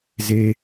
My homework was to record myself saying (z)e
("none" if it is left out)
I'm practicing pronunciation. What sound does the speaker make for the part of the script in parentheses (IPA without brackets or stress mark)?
z